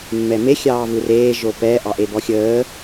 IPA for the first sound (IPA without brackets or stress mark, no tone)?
mː